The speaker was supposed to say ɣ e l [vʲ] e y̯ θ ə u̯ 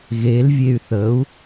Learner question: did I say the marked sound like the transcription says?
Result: yes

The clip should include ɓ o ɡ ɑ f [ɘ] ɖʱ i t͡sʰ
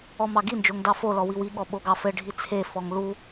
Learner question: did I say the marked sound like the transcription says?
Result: yes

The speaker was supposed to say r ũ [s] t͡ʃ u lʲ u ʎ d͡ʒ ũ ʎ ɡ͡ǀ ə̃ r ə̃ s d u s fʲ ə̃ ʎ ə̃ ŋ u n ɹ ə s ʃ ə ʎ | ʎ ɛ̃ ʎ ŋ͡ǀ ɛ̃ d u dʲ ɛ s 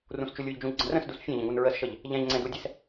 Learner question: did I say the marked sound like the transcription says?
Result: yes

